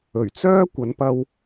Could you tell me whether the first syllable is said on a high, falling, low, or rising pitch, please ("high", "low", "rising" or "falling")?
low